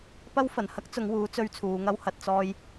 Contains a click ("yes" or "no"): no